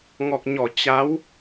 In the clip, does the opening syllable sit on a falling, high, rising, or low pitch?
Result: low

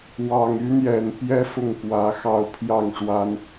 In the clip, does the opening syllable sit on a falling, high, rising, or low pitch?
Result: low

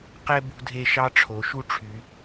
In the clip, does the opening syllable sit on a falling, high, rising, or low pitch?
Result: high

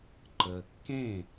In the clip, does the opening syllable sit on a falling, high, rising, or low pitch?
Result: low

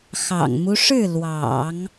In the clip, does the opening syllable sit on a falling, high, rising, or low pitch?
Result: low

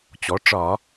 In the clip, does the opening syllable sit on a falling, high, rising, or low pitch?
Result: rising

